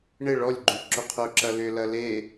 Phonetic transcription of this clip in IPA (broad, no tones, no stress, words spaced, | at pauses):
ɳɪ ɭɔlʲɡ͡ǃy ǁʊqʰʊǁɐ lʏlɐ le